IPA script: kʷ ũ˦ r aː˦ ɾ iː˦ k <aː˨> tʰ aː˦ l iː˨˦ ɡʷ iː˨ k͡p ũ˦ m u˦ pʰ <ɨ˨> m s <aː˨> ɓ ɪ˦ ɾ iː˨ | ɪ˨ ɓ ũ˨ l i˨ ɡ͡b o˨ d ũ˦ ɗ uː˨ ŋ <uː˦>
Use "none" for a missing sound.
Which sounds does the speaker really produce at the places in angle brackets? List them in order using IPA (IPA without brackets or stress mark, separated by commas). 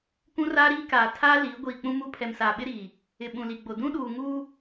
aː˨, ɛ˨, aː˨, uː˦